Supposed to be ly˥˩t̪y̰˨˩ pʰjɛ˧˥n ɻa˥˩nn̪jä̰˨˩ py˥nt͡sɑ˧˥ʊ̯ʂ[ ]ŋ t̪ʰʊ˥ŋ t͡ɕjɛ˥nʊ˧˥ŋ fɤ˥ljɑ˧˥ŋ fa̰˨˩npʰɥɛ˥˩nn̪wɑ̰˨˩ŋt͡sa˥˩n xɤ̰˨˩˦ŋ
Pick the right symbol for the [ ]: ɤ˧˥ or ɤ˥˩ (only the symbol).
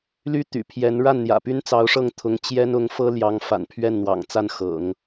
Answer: ɤ˥˩